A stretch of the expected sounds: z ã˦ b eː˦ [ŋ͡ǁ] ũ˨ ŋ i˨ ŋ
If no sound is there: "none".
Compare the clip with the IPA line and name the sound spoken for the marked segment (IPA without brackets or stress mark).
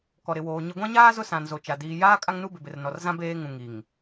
ŋ